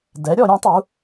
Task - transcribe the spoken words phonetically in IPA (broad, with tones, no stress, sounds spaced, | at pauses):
d ɛ˩˥ ɾʲ ɔ˧˩˧ ɾʲ ũ˩˧ tˤ u˩˧